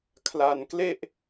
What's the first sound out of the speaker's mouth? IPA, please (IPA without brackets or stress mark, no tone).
kʰ